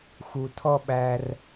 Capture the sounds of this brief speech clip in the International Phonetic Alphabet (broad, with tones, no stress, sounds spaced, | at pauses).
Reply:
x u˧ tʰ ɔ˥ ɓ æ˧ r